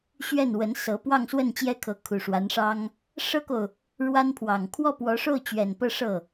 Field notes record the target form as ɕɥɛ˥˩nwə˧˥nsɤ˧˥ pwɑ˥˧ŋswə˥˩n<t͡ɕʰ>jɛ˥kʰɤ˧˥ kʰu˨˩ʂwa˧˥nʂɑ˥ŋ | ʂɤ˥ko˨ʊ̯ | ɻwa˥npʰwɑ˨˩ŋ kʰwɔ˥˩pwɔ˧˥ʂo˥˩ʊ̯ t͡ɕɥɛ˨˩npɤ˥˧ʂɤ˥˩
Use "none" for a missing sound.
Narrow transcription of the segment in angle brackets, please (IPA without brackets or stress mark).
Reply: t͡ɕ